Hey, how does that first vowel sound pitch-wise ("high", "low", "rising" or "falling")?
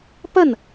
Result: falling